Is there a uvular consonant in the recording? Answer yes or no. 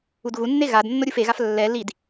no